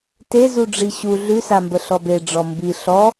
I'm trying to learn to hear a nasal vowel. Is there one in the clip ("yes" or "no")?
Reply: no